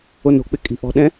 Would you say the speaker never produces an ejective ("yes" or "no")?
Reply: no